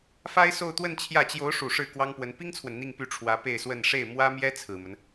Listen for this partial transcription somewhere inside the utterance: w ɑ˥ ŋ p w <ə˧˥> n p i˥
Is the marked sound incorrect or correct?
correct